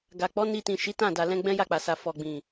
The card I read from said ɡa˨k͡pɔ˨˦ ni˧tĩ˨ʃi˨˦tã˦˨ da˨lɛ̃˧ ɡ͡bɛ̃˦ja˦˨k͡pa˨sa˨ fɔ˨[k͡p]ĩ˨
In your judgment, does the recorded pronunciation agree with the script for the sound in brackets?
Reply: no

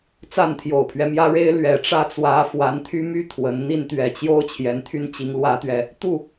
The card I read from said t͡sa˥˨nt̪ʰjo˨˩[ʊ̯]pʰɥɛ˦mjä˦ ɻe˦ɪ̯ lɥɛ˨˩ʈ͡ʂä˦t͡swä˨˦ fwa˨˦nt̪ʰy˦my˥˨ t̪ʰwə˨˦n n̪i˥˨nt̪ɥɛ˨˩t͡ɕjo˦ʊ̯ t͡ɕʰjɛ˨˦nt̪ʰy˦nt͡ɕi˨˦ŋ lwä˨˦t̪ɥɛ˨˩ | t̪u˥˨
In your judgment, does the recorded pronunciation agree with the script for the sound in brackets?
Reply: yes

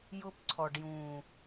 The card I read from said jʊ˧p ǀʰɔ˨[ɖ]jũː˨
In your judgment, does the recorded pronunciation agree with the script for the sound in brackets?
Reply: yes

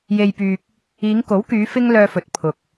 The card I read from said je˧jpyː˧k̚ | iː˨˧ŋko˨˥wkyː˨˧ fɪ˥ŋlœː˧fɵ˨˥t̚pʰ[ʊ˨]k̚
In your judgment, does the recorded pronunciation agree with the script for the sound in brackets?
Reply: yes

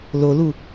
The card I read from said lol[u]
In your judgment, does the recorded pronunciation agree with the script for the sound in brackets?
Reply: yes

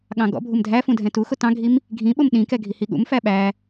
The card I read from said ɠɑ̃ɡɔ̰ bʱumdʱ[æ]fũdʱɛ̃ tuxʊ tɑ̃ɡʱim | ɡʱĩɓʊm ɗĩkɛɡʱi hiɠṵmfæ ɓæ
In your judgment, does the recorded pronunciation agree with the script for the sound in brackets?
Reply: yes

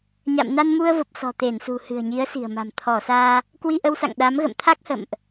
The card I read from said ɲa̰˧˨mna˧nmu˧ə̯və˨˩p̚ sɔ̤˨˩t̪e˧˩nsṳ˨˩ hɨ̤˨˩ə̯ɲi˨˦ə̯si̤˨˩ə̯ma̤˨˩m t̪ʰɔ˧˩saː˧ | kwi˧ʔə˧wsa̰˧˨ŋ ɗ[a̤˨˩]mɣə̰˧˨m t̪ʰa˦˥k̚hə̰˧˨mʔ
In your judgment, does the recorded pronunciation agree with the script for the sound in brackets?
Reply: no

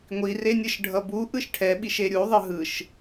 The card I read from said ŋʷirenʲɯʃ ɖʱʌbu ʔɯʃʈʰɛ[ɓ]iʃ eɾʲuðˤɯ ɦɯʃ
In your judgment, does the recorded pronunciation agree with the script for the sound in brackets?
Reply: yes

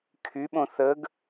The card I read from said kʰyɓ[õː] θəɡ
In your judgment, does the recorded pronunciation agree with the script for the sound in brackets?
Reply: no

